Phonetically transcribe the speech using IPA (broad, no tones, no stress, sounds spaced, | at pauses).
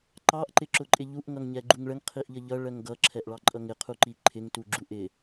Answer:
ǃ ɑ ʔ ǃ ɪ ǁ ʊ ǃʼ ɪ ʎ u ʔ ŋ ʌ ŋ ɲ ɛ ɡ͡ǃ u ŋ ɭ ə ŋ qʰ i ʔ ʎ ə ʎ ʌ ɭ ɜ ŋ ɡ ʌ ǁʰ ɛ ʔ ɭ ɑ ǃʼ ʌ ŋ ɪ qʰ u ǃ i ǃʰ ɪ ŋ t u ɡ͡ǁ u ʔ ɪ